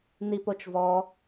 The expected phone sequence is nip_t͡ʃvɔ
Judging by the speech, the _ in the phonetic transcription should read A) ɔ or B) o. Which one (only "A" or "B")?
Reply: B